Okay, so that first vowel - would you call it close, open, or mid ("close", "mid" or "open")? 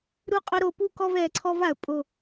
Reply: close